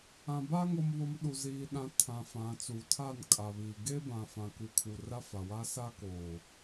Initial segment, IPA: ã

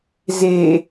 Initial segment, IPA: z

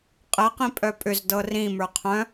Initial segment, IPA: qʼ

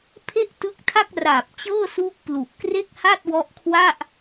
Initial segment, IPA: pʰ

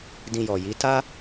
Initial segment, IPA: d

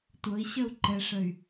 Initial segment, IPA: tʷ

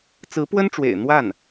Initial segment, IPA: t͡s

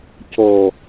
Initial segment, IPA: c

